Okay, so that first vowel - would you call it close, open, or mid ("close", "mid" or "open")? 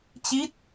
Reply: close